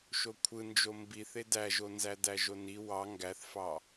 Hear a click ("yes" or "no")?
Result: no